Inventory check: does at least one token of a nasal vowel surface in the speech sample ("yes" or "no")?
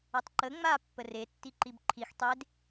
no